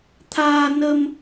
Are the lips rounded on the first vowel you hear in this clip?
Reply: no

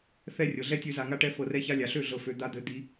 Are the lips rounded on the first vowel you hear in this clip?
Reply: no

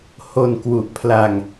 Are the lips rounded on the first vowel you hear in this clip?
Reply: yes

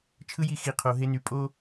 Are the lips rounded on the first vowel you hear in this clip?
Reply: no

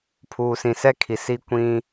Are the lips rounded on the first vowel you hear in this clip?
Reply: yes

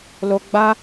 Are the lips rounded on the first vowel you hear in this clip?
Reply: yes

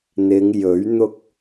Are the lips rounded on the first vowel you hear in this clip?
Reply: no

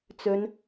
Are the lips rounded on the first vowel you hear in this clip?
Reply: yes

